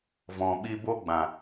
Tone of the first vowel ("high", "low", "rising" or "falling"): low